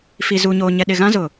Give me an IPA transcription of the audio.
f i˨ z u˨ ɲ oː˨ ɲ ɛ˨ ɗ ɪ˨ ɣ ã˦ z ʊ˨

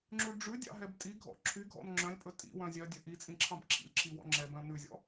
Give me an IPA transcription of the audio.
ŋ͡ǁ ʉ ɖ͡ʐ ʉ dʲ ɑ̰ ɦ ɛ b tʼ i ɡʱ ɔ̰ ǁʰ y ɡʱ ɔ̰ n ŋ͡ǁ œ̃ lʲ pʼ ɵ tʼ ḭ w œ̃ zʲ œ dʲ ɵ ʔ i t͡sʼ ĩ ǁʰ ɑ̃ b ǁʰ ḭ lʲ ǁʰ i w ɔ̰ ŋ͡ǁ ɛ b œ̃ n ʉ zʲ ɔ̰

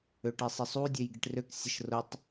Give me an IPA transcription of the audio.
ø ʈ i sˤ ɪ sˤ u dʲ ø j ɡ i ʈ r ø k sʲ ə ʃ r ʊ tˤ

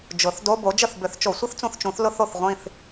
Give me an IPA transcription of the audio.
d͡ʒ ʊ˨˩˦ θ d o˧˥˧ b o˨˥ d͡ʒ ə˦˨ θ b ʏ˨˩˦ θ t͡ʃ o˨˩˦ sʷ ʌ˥ θ t͡s ũ˦˨ θ t͡ʃ ũ˨˩˦ θ l ʊ˥ θ o˦˨ θ ʁʷ ĩ˦˨ θ

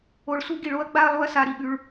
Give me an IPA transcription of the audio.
o˧ ɭ s u˦ ɡ i˧ ɭ o˦ ɐ̯ ɡ͡b a˦ ɐ̯ lˠ u˦ ɐ̯ s a˧ ɾ i˨ ɠ ʉ˧ ɭ

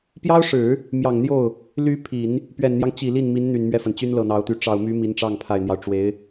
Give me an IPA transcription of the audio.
p j ɑ˥ ʊ̯ ʂ ɻ̩˨˩˦ | m j ɑ˨˩ ŋ n̪ j o˥˩ ʊ̯ | l y˧˥ pʰ i˨˩˦ n | p ɥ ɛ˨˩ n n̪ j ɑ˦ ŋ t͡ɕ i˨˩ l i˥˩ n m i˧˥ n n̪ y˨˩ n m ɥ ɛ˥˩ f ə˩ n t͡ɕ y˥ n l ɤ˨˩ n̪ ɑ˧˥ ʊ̯ t̪ y˧˥ ʈ͡ʂ ɑ˨˩ ʊ̯ m y˧˥ m i˧˥ n ʈ͡ʂ ɑ˥˩ ŋ pʰ a˨˩ ɪ̯ n̪ j ɑ˦ ʊ̯ ʈ͡ʂ w e˧˥ ɪ̯

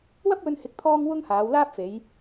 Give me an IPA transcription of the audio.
w ɐ˥ p̚ w ɵ˧ n h ɪ˨˥ k̚ t̪ʰ ɔː˥ ŋ w ʊ˥ ŋ h aː˨˧ w l aː˥ p̚ f e˨˧ j

